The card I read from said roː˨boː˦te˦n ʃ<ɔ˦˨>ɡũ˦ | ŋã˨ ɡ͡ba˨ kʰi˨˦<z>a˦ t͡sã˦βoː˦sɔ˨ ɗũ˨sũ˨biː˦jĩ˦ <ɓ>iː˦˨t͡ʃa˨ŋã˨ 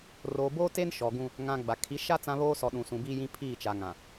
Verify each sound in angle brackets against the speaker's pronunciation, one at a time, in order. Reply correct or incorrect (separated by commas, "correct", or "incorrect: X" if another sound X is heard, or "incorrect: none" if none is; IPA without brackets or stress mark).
incorrect: ɔ˨, incorrect: ʃ, incorrect: pʰ